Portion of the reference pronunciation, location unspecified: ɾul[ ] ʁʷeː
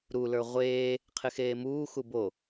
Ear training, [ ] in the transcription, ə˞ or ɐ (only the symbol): ə˞